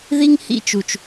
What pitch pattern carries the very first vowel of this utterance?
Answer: high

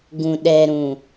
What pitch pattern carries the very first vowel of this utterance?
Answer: low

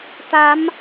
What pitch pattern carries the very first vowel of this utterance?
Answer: rising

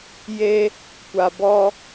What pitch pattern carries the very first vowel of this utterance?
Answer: high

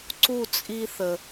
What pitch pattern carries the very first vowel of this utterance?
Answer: falling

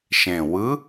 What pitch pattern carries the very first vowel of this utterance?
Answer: low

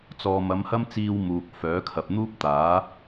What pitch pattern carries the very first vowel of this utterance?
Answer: low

